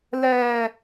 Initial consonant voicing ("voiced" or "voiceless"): voiced